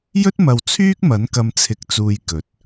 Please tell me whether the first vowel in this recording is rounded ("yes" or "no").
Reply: yes